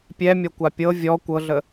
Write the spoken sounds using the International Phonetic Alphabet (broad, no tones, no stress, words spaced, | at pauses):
pʲɛmʲɔkʷa pʲɤ vʲɔ kʷɤɮə